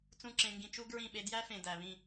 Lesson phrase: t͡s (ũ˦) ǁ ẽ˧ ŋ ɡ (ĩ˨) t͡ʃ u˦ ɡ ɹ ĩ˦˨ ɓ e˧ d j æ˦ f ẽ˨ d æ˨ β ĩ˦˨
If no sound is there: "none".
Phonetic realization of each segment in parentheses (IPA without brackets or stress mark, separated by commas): ũ˦, ĩ˧